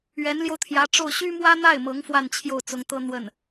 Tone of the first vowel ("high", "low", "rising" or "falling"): rising